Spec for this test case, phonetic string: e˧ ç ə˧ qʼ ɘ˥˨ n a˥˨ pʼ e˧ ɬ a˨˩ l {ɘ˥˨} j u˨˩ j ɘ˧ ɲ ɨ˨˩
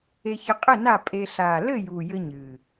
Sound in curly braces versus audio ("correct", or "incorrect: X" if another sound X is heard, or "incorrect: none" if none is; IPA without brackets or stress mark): correct